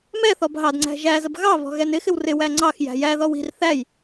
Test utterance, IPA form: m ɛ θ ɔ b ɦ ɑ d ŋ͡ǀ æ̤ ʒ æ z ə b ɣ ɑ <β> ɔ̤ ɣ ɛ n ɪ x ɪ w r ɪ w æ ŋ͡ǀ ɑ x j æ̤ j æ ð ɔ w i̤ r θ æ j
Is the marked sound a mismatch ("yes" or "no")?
no